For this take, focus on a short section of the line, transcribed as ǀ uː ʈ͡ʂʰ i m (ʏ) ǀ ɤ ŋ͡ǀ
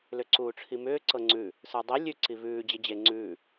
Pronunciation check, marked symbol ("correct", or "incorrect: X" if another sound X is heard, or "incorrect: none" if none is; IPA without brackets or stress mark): incorrect: ʏː